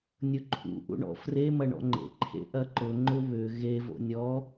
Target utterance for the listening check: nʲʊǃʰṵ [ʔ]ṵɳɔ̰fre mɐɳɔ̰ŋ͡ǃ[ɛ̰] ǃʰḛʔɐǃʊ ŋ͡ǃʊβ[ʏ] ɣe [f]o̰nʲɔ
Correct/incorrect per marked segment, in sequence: correct, incorrect: ḛ, correct, incorrect: v

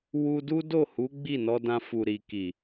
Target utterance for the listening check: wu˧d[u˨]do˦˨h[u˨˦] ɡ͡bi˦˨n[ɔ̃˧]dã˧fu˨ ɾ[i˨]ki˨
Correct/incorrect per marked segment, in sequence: incorrect: u˦, correct, incorrect: ɔ˧, correct

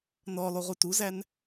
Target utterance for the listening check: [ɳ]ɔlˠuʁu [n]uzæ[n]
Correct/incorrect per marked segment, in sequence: incorrect: n, incorrect: t, correct

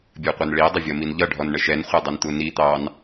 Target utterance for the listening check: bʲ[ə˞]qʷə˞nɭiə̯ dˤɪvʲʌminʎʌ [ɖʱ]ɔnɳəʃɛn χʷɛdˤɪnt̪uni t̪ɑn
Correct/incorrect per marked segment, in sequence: correct, correct

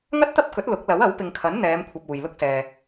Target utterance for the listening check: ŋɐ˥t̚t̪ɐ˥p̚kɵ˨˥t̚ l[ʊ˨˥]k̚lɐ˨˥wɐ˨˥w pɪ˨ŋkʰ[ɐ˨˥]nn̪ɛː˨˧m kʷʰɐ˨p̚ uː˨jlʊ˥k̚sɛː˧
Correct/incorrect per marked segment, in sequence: correct, correct

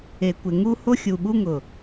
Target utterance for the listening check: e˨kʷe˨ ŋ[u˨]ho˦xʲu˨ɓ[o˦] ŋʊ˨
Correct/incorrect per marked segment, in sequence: incorrect: u˦, incorrect: u˦

